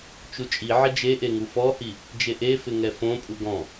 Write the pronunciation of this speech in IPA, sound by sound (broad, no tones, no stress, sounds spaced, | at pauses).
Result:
t͡ʃ u t͡ʃʼ i ʕ ɪ d͡ʒ e ʔ e ŋ u f ɔ h i | d͡ʒ e ʔ e f ɪ ŋ ɛ f õ pʼ u ɡ ɔ̃